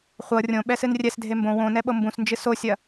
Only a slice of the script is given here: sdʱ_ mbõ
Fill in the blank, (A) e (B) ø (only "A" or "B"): A